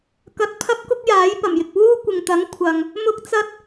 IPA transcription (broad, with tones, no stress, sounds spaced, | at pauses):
k ɐ˧ t̚ pʰ ɐ˥ p̚ k ʊ˥ k̚ j aː˨˥ j p ɐ˨˩ m j ɪ˨ k̚ w uː˥ kʷ ɪ˨ ŋ t̪ ɐ˨˥ ŋ kʷʰ ɐ˨ ŋ | m ʊ˥ k̚ t͡s ɐ˥ t̚